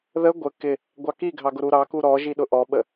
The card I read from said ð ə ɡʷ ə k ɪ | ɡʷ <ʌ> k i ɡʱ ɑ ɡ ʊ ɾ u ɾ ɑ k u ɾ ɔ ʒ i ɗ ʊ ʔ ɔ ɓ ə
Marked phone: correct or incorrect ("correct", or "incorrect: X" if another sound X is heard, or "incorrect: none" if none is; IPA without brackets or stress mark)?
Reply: incorrect: ɑ